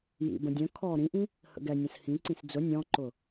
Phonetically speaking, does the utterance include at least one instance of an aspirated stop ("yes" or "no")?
yes